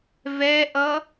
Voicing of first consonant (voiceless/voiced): voiced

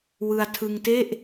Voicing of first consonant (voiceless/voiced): voiced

